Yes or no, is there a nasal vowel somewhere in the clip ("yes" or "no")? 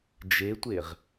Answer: no